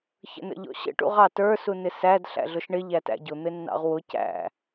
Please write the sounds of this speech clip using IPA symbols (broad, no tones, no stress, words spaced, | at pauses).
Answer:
çə̰nə̰ʎɔ̰ɕə̰ ʈṵʁɑtə˞ sunɪsæd ɬæ̰ɮʊʃɳɪ ʎætæ̰ɟʊ n̪ɪnːɑ̰ʁwʊ cæ̰